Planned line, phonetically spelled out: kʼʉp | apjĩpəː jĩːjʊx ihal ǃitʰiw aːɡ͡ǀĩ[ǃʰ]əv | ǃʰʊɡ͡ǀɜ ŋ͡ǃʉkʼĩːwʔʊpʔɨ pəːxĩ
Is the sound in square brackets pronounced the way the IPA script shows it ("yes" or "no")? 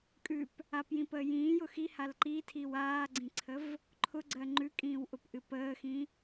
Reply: no